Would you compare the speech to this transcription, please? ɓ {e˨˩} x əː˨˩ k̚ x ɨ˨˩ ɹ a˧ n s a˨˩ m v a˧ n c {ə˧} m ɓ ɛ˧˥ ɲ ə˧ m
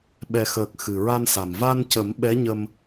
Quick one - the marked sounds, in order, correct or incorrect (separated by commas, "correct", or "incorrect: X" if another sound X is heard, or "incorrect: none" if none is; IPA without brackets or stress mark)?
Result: incorrect: ɛ˨˩, incorrect: ə˨˩˦